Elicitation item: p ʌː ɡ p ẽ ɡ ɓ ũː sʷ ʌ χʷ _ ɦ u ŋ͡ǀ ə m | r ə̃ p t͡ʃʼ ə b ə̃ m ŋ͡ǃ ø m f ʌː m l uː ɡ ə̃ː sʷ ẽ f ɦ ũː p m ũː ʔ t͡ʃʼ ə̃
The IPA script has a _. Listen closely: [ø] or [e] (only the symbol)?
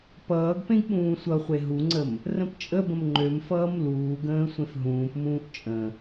e